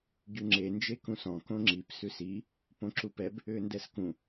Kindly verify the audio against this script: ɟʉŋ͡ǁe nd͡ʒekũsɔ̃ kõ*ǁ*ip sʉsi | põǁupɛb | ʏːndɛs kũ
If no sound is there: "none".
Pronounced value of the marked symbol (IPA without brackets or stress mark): ŋ͡ǁ